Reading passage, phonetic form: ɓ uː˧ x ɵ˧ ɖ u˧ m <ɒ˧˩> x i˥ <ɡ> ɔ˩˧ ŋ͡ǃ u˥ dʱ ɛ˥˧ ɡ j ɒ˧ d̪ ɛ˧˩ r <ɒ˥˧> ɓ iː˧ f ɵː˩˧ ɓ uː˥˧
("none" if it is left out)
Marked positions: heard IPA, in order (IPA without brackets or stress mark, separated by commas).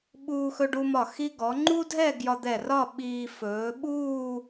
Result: ɒ˧˩, ɡ, ɒ˥˧